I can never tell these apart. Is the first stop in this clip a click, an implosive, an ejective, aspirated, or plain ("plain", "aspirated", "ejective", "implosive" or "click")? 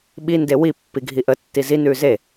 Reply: implosive